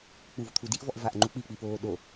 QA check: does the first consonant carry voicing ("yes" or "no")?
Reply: no